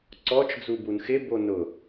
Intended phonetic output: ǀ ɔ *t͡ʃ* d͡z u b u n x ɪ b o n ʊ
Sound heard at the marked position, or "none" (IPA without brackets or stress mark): t͡ʃ